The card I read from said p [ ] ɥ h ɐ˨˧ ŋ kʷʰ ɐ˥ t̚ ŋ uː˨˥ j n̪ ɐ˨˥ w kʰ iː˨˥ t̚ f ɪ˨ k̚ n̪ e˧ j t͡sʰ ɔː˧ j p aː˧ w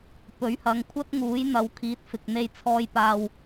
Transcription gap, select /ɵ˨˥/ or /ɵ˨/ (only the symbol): ɵ˨˥